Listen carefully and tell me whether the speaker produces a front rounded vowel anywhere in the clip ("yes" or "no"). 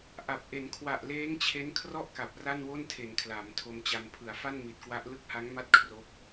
no